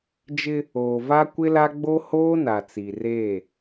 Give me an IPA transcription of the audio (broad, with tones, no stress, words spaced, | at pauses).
d͡ʒɪ˦ | oː˨va˦kʷɪ˦la˦ ɡ͡bo˦hoː˦na˨ t͡si˨reː˦˨